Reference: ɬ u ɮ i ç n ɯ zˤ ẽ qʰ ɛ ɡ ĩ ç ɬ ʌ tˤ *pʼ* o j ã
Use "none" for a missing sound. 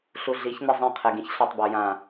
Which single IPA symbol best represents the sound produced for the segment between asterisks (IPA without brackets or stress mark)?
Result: b